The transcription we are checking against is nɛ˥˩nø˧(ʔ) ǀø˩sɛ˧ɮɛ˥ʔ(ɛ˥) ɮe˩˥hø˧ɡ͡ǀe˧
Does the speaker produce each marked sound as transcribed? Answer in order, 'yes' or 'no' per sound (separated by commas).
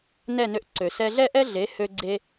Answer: yes, yes